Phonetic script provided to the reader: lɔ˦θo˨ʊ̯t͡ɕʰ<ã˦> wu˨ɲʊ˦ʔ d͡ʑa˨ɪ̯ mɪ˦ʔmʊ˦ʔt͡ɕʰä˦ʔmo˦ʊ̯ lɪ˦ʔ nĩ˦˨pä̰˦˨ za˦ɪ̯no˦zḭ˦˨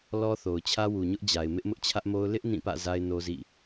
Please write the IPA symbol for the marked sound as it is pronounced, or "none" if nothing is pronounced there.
ä˦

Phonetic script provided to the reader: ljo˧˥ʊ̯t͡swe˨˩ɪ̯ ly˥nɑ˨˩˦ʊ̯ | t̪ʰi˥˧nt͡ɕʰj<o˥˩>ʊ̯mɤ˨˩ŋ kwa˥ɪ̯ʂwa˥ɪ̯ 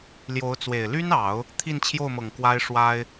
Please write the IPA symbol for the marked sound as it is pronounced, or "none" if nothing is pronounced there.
o˥˩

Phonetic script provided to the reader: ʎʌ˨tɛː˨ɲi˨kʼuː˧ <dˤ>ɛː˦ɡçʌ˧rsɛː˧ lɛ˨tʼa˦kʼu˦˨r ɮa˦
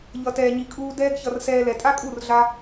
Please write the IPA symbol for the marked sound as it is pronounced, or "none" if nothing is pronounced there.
d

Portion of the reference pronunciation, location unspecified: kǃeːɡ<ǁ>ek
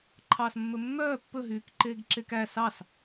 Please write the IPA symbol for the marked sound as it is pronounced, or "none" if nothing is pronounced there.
ǁ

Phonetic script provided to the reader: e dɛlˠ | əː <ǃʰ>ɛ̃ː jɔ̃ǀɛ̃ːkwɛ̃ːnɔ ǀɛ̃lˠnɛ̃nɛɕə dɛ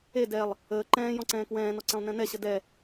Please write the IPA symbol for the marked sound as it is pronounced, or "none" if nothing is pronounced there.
ǃ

